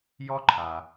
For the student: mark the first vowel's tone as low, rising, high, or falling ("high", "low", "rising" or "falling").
high